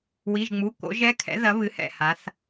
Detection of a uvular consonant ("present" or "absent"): absent